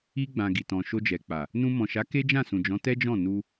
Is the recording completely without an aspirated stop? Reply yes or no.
yes